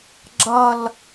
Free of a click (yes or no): no